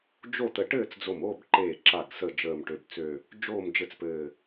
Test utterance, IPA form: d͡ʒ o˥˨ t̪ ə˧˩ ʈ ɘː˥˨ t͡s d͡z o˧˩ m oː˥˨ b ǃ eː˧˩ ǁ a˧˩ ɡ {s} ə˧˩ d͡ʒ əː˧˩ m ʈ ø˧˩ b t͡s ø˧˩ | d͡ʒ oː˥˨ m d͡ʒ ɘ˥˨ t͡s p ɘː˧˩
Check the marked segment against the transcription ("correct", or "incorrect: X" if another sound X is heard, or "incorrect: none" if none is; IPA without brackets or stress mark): correct